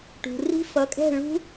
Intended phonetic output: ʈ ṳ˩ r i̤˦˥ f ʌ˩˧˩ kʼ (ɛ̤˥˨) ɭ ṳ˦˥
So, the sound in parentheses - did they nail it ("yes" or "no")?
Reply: yes